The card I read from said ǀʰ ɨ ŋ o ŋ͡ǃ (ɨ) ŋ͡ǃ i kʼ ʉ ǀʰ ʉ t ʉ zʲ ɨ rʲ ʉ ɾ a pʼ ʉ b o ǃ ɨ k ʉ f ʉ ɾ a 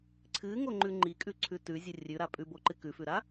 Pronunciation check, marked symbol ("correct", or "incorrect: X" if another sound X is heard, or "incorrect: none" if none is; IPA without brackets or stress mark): incorrect: ʉ